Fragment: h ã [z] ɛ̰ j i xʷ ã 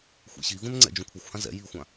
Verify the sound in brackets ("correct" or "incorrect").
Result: correct